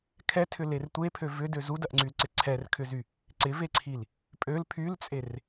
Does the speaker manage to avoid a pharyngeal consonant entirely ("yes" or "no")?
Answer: yes